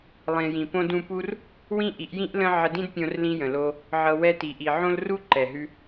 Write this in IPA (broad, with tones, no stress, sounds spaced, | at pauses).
lˠ ĩ˨ j ĩ˨ p õ˧ d ũ˧ p u˦ r | w ĩ˦ ʔ i˨˦ ʔ j ĩ˦ ʔ l ə̃˦ ʕ ə˧ d ĩ˦ d pʲ õ˧ r l ĩ˧ j ə̃˨ l o˧ | ʕ ɤ˧ w ɛ˧ t i˨ ʔ i˨ ʕ õ˦ l r u˦ ǃ ɛ˨ ɦ ʉ˧